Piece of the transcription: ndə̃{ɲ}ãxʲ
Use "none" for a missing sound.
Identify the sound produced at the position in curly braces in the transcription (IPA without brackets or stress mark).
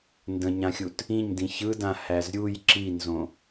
ɲ